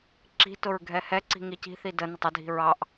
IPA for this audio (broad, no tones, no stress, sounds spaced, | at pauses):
ǁ i̤ t ʊ ɹ ɡʱ ɛ h ɛ ǀ i̤ ŋ i c i̤ θ i d ə n ɪ tˤ ə dʱ i̤ ɹ ɑ ʔ